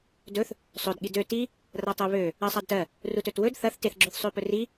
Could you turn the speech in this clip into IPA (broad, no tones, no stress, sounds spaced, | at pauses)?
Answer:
d ɵ θ | sˤ ɵ d ɠ i d ø t i | r a tˤ ɜ β ø | ɜ sˤ a d t ɜ | r u t ɵ t w ɵ d θ ɐ θ t e θ ɡ͡ǁ ø θ sˤ ø p ɵ r i